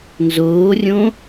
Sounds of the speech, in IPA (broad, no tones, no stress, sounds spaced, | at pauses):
n z oː rʲ õ